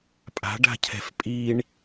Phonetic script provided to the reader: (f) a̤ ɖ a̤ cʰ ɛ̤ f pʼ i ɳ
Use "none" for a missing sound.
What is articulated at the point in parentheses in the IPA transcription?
pʼ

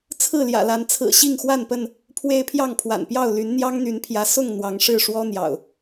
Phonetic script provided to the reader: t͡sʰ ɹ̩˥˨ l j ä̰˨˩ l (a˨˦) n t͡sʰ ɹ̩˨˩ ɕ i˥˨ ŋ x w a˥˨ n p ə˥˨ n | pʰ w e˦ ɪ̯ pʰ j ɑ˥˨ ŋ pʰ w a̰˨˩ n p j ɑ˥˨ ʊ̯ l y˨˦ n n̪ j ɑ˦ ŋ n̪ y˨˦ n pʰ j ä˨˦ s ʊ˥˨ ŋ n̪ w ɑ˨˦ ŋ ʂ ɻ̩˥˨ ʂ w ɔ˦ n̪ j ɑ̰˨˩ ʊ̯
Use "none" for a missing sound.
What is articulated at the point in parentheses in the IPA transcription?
a˨˦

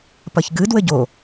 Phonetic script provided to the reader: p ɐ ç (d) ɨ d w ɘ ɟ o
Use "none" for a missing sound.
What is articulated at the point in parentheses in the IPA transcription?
ɡ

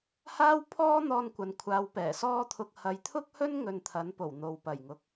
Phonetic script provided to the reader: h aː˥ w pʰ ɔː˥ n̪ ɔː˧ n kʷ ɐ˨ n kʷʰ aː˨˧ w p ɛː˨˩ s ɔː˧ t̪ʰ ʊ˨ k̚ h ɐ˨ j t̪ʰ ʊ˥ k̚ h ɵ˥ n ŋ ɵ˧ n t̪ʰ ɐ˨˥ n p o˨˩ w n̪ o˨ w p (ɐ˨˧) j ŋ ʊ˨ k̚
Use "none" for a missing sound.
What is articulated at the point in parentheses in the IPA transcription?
ɐ˨˩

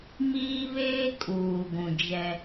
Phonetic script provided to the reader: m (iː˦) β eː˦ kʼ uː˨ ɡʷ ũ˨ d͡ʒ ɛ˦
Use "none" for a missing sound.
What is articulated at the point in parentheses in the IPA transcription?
iː˦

